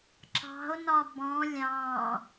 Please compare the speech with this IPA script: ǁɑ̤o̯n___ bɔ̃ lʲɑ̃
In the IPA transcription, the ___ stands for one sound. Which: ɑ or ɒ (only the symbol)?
ɒ